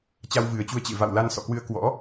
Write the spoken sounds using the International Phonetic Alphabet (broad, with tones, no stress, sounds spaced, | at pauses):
t͡ɕ a˧ w v ɨ˨˩ ə̯ t͡ɕ u˧ ə̯ t͡ɕ ḛ˧˨ v a̰˧˨ w l a˧ n s ɔ̰˧˨ k w ɨ˧ ə̯ k w ɔ̰˧˥